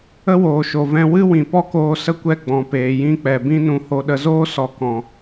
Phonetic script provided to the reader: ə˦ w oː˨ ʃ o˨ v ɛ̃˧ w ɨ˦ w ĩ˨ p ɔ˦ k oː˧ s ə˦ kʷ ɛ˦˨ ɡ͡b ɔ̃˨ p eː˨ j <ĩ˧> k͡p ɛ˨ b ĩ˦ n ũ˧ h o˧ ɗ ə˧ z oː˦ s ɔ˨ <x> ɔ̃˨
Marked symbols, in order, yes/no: yes, no

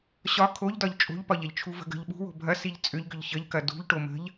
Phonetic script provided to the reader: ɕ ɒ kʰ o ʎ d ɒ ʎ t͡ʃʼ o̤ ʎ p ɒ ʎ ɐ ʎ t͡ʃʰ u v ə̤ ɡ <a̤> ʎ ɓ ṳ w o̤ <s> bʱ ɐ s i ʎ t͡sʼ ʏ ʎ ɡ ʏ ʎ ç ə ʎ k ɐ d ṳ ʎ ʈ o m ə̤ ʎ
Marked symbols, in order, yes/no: no, no

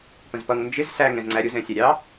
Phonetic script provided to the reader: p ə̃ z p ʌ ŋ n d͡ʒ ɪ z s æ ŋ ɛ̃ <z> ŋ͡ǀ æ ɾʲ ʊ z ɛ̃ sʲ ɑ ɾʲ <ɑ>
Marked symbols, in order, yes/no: yes, yes

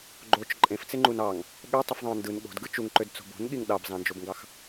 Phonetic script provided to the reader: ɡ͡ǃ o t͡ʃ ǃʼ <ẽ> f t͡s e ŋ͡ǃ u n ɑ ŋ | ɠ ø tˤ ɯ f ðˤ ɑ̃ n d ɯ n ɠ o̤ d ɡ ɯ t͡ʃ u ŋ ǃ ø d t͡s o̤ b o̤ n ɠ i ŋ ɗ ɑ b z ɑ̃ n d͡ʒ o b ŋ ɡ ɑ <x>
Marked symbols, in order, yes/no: yes, yes

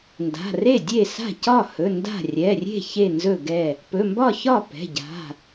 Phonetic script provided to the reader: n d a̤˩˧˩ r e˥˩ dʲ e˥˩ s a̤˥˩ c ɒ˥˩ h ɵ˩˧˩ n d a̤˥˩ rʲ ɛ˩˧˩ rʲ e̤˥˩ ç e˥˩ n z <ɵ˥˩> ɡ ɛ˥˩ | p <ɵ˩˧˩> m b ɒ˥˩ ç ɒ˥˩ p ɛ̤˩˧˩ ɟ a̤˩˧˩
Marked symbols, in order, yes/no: yes, yes

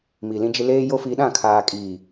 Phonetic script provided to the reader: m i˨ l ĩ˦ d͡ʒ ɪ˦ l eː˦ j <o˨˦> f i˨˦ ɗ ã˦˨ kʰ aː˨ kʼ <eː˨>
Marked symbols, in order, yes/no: no, no

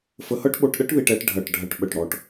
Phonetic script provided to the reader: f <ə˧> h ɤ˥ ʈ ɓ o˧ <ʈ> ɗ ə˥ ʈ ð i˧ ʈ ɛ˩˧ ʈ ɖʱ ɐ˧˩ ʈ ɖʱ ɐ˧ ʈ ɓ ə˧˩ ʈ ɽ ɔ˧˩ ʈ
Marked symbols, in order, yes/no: yes, yes

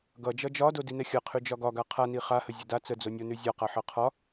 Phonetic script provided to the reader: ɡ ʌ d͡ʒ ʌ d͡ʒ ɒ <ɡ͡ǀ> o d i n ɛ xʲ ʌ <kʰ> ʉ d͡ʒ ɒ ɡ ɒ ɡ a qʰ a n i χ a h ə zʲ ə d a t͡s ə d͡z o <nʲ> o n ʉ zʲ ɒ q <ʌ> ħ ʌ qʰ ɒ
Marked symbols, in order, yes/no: no, no, yes, no

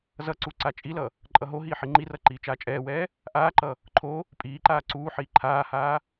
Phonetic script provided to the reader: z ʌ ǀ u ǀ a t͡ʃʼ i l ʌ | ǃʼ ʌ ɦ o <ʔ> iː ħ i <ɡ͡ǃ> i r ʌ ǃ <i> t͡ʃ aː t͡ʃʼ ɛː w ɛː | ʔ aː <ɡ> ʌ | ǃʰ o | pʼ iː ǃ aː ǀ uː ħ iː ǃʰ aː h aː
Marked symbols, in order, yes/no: no, no, no, no

